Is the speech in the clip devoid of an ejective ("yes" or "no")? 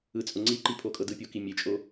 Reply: no